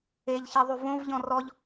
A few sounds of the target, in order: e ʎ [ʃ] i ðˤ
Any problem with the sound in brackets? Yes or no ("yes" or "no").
yes